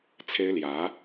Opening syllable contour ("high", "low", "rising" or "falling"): high